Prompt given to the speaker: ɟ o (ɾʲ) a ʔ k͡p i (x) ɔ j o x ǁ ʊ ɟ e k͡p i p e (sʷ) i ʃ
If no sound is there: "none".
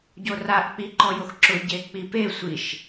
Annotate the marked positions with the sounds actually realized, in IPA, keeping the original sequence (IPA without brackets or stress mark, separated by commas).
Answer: r, ǃ, sʷ